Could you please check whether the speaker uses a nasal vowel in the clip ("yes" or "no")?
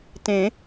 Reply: yes